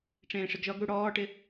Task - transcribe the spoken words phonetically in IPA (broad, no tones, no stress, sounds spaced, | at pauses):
ʈ͡ʂ ẽː ʂ ɪ ɡ ʒ ɔ ɡ ɽ u ɽ ɔː ʈ ɪ